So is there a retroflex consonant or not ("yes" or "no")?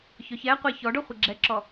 yes